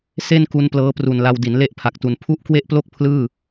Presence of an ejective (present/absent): absent